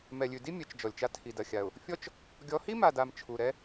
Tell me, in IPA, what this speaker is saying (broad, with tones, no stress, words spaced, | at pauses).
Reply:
mɛ˨lʲʉ˨di˦mʲɛ˨t͡ʃ d͡ʒɔ˨lʲt͡ʃa˦ tʰi˨dɐ˨xʲa˨ʊ̯ | fʲɔ˦t͡ʃ | ɡʲɔ˨˦hi˦ma˨da˨m t͡ʃʰu˨ɾɛ˦